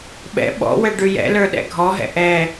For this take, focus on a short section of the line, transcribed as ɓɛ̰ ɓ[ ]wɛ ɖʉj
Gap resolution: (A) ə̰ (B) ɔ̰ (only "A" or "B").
B